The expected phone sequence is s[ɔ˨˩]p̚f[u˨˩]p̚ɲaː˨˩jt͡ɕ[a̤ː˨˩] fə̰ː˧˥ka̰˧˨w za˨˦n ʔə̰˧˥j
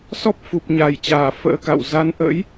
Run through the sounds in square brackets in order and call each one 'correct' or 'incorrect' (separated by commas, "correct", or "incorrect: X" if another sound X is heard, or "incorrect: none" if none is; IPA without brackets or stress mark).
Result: incorrect: ɔ˦˥, correct, incorrect: aː˧˩